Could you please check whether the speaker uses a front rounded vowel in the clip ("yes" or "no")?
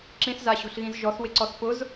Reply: no